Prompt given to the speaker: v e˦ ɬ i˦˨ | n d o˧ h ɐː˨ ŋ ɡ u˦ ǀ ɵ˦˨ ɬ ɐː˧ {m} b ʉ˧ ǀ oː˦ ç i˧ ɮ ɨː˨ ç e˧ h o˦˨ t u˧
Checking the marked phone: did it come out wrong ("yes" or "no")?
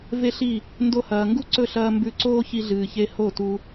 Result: no